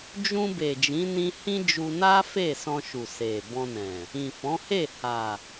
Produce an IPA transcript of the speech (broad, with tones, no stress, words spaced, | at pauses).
d͡ʒũ˧ be˨d͡ʒĩ˨˦nĩ˧ hĩ˦ d͡ʒu˧ na˦ fe˦˨sɔ̃˧ʃu˨ se˨ bɔ̃˧nɛ̃˨ | ĩ˨fɔ̃˨˦he˦˨ ha˨